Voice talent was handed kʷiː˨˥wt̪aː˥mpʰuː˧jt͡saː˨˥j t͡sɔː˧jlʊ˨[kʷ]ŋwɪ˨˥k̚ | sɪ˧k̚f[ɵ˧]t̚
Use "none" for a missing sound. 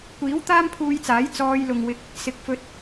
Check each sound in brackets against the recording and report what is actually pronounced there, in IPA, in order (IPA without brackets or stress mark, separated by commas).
none, ɵ˧